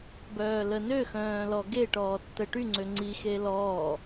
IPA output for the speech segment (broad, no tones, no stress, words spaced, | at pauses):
bœːlənøxœ̃ː lɔɡeʈɔː tːəʈyŋ͡ǀø ŋ͡ǀixe lɔː